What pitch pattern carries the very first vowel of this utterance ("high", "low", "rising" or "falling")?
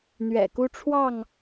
low